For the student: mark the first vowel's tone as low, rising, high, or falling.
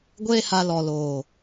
high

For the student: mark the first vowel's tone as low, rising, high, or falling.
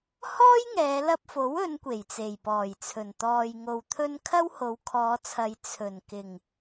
high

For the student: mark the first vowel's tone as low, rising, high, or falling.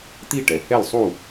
falling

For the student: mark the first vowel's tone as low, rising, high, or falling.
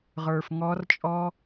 low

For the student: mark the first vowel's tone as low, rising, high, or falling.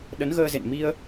rising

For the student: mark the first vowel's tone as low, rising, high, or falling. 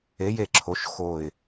rising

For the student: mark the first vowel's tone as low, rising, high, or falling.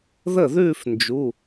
falling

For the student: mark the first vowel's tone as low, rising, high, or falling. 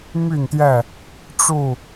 falling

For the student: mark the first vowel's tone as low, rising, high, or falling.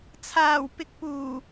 low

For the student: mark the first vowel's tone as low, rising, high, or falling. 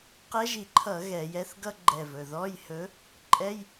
rising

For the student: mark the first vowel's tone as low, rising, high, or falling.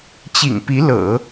low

